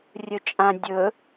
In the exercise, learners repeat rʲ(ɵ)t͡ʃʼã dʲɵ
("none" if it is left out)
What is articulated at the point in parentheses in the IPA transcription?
ɵ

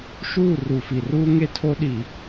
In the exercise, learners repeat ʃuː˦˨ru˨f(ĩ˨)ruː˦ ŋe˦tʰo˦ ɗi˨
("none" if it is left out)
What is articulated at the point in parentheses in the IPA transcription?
i˨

